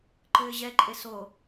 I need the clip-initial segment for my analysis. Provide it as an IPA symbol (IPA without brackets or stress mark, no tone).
ǃ